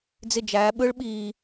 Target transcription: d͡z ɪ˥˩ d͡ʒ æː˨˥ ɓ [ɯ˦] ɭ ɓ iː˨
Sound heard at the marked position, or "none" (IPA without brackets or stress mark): ɯ˦